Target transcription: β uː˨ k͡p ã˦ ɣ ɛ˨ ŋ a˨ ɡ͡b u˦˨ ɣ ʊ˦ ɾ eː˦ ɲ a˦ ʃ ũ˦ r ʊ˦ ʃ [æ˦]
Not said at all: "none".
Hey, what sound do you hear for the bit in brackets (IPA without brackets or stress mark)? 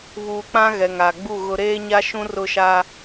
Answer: a˦